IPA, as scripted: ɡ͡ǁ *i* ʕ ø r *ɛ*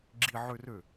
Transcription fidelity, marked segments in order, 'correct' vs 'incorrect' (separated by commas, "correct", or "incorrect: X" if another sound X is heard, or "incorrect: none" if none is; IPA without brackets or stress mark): correct, incorrect: ø